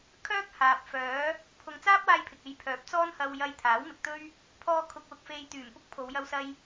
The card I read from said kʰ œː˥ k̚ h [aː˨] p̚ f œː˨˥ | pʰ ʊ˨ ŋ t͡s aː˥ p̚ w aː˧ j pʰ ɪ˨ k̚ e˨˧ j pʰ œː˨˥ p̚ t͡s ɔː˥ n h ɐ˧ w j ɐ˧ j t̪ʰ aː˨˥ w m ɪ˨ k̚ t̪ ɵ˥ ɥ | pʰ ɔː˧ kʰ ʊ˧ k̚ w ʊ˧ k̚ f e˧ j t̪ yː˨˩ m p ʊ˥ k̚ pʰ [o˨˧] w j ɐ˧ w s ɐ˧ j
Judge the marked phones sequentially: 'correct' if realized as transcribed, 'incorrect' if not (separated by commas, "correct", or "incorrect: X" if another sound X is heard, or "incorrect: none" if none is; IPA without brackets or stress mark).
correct, correct